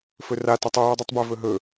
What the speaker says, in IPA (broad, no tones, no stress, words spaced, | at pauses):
fɵra tɐtˤu judˤitˤbɵ vɵɦɵ